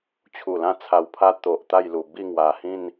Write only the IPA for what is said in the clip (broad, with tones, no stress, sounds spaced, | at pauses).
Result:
t͡ɕʰ u˨˩ l ã˥˧ t͡sʰ a˧ w pʰ a˦ t̪ o˨ ʔ t̪ a˥˧ j l u˨˩ b i˥˧ ŋ w a˨˩ h ĩ˥˧ n